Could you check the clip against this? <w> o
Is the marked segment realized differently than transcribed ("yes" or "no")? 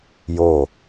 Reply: yes